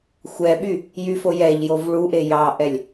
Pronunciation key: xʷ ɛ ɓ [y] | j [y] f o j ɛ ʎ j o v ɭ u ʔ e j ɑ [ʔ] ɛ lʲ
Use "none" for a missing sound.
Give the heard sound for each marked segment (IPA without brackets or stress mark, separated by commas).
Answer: y, y, ʔ